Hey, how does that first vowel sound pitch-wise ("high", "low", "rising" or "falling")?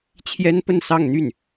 high